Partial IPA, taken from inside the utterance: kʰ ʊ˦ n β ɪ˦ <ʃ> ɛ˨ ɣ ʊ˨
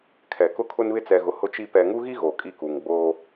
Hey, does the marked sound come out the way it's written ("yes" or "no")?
no